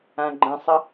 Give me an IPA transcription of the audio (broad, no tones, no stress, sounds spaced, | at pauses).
ã ɡ͡ǃ ə̃ sˤ ə